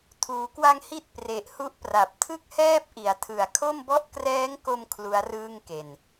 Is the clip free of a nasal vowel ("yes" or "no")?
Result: yes